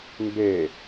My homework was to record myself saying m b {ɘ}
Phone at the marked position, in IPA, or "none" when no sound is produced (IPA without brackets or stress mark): e